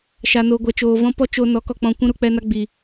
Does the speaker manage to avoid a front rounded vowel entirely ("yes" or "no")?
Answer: yes